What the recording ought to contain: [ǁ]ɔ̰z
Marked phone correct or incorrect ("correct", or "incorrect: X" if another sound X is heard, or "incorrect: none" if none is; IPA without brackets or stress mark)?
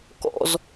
incorrect: k